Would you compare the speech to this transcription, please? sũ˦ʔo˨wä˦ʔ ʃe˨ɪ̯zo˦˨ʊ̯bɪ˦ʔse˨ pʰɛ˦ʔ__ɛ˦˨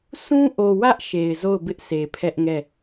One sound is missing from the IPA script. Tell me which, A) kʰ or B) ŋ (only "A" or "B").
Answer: B